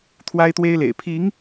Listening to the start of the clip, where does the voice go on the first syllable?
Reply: high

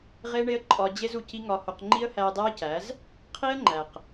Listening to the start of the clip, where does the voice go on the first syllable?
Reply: high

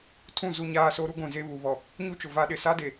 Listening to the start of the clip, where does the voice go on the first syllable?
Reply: falling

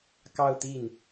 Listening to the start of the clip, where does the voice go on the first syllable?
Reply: falling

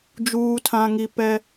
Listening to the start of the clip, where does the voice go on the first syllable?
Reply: low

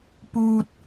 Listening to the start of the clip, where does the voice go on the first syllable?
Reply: high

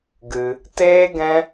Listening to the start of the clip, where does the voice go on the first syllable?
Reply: high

